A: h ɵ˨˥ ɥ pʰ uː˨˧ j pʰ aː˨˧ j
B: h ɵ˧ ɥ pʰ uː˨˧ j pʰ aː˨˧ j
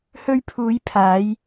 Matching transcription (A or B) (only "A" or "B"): B